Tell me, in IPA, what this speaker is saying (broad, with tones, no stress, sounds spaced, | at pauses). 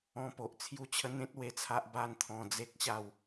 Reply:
ɔ̃˧ p o˨ ʔ t͡sʰ j u˥˧ t͡ɕʰ ə˦ n̪ ẽ˦ t̚ w e˧ t͡sʰ a˦ ʔ b a˥˧ n t̪ʰ ɔ̃˧ d͡z e˦ k̚ ɕ a˥˧ w